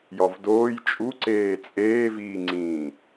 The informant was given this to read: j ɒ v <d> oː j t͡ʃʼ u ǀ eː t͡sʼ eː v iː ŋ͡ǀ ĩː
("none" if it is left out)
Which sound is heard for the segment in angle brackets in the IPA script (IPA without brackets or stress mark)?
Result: d